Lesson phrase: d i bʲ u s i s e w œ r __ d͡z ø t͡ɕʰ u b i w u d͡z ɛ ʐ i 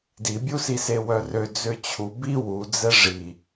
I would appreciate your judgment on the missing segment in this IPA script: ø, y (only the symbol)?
ø